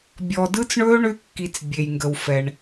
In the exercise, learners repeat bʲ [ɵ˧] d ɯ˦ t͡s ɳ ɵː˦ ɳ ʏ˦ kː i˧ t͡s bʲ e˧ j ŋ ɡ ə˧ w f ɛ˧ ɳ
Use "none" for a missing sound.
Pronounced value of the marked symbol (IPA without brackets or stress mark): ɔ˧